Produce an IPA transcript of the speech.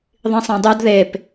ðˤĩsˤɛ̃dˤud ðep

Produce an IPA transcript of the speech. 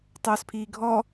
tˤɵːspʰiːɡʱɔ

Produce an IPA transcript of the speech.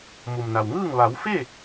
mu˩m na˩wŋɯː˥˨ŋ ʋa˩˧wfe˥˨

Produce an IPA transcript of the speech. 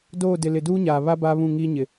doː˦˨dɪ˨ lɪ˨duː˦ɲaː˨ βa˦ baː˦βũ˦˨ŋiː˦ɲɪ˨

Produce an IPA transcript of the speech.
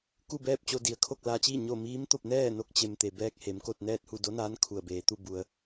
ku˥˨bɛː˥˨p̚t͡ɕo˧ di˩ə̯ kʰo˥˨k̚laː˧t͡ɕiː˥˨ ɲo˥˨ miː˧˥mt̪o˥˨p̚nɛː˥˨ no˥˨k̚t͡ɕe˧m t̪e˩bɛː˧k̚ he˩˧mko˥˨t̚nɛː˥˨t̚hu˥˨ do˧˥naː˧˥n kʰu˧˩ə̯ beː˩˧t̪u˧ bu˧ə̯

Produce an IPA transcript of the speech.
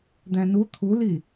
d̪æ̃nu t̪ʰuli

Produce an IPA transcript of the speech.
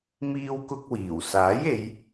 miː˥wkʊ˥k̚wiː˨˩w saː˨˥je˨˧j

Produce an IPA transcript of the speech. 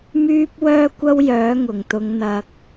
myː˥p̚wœː˥kʷɐ˥wjœː˨˥ ŋʊ˨˩ŋt̪ʊ˨˧ŋn̪ɐ˨k̚

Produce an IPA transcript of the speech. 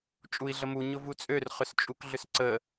t͡ʃʼui̯ɮəmu ɲʊvut͡sʼør χʏst͡ʃʼukɮʏsǀə

